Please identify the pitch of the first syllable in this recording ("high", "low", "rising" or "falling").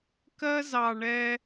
high